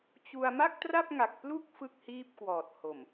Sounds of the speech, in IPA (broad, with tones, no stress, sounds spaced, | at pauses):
t͡ɕ u˧ a̯ m a˥˩ k̚ t r a˥˩ p̚ ŋ a˨˩ k̚ p l u˥˩ k̚ f ɯ˥˩ k̚ h iː˥˩ p̚ k w ɔː˨˩ t̚ h o˨˩ m